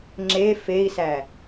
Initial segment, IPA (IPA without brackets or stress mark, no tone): ŋ͡ǁ